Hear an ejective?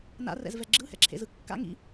no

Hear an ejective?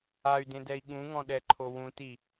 no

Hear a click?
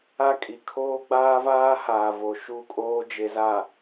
no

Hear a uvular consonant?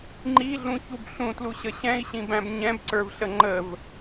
no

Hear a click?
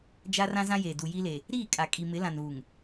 no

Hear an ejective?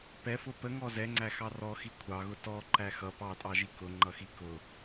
yes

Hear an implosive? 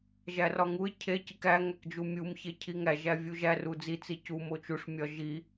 no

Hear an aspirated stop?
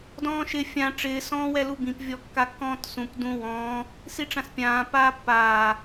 no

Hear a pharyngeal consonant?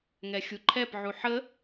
yes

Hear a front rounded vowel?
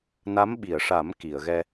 no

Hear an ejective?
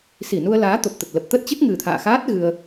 no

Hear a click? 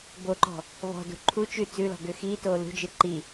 yes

